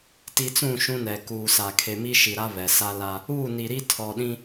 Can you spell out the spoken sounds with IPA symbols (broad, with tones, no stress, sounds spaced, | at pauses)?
t i˨ t͡s ũ˦˨ ʃ ũ˦ n ɛ˨ k uː˨ s a˨ kʰ e˨ m i˦ ʃ i˨ ɾ a˦ β ɛ˨ s a˦ l a˦ | uː˦˨ n i˨ ɾ i˦ tʰ ɔ˨ ɗ ĩ˦